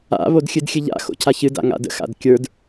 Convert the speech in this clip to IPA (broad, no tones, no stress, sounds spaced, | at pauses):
a̰ β o d xʲ ɨ d xʲ ɨ ʎ a̰ x o̰ cʰ a ç ɨ d a̰ ŋ a̰ d ə̰ x a̰ d kʲ ə˞ d